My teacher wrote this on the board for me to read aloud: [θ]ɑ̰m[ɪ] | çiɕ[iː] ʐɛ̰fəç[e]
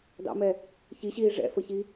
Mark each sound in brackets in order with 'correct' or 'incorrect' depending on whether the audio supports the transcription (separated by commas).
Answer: incorrect, incorrect, correct, incorrect